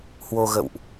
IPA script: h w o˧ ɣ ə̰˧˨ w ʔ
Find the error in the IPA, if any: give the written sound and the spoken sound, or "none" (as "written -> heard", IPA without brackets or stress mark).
none